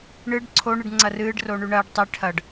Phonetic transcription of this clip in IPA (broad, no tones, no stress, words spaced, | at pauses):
ɳɨɖ ǀʰoɳɨɖ ŋ͡ǀɐrɨːɖroɳʉ ɳɐːɖ tˤe ʈʰɐɖ